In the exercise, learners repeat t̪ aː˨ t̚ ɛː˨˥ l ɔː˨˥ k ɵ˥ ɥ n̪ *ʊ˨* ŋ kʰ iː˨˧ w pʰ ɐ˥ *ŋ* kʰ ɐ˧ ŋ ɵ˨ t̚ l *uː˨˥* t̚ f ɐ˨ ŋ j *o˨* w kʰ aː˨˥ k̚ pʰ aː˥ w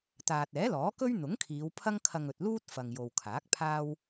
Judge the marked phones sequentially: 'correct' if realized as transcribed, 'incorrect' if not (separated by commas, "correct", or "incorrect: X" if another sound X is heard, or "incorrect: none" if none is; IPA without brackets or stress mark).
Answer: incorrect: ʊ˨˥, correct, incorrect: uː˥, correct